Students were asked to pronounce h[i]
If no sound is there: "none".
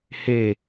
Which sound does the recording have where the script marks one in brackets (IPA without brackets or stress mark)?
e